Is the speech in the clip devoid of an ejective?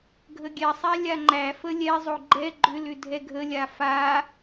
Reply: yes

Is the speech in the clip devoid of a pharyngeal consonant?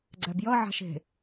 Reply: no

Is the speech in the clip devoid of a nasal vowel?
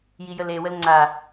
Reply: yes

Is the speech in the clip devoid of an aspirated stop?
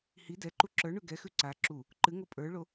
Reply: yes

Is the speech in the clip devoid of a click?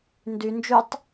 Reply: yes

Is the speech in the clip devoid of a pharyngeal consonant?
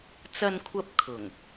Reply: yes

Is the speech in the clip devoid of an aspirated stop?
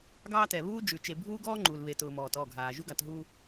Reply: yes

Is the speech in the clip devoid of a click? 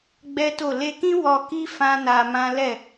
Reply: yes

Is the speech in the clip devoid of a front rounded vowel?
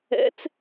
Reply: yes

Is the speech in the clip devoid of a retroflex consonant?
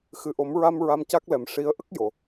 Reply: no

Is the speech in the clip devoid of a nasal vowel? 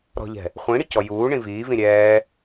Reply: no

